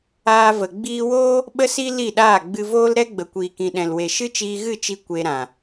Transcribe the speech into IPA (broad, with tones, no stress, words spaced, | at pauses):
aː˧və˨ ɡ͡biː˧woː˦ | ɓə˦si˦ li˦˨ɗaː˦˨ ɡ͡bɨ˧voː˦l ɾɛ˦ɡ͡bə˨ kʷiː˨kĩ˨ɗɛ̃˨lwe˨ ʃɨ˦t͡ʃiː˧ɣɨ˦˨t͡ʃi˧ kʷe˧ɾã˨